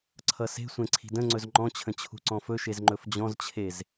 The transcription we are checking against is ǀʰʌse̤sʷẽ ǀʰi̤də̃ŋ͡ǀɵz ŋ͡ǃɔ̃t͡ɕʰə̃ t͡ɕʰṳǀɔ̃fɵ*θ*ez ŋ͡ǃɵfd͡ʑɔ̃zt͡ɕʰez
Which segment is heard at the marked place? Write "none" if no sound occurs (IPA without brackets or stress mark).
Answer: ʃ